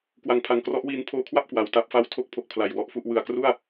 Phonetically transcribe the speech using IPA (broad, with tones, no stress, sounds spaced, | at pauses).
k w a˩˦ ŋ pʰ a˩˦ ŋ k r ɔ˦˥ ʔ w iː˧ n pʰ oː˧ kʰ w a˥˩ p̚ k w a˩˦ w t a˦˥ p̚ f a˥˩ w tʰ o˦˥ k̚ pʰ o˨˩ k̚ pʰ l a˨˩ j w ɔ˦˥ ʔ f u˥˩ ʔ w ɯ˨˩ a̯ k r u˥˩ a̯